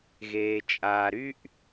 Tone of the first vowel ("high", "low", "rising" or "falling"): low